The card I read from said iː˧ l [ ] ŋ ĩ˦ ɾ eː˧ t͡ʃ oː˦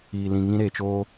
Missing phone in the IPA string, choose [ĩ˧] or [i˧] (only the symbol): ĩ˧